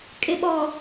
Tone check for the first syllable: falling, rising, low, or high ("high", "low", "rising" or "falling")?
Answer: low